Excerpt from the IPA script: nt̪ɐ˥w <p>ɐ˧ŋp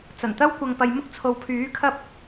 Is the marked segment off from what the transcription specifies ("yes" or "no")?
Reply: yes